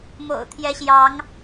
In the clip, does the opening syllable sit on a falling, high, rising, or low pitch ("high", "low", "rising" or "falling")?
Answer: low